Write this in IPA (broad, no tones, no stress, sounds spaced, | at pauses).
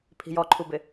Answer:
pʰ i̤ j ɔ ǃʰ u b ɪ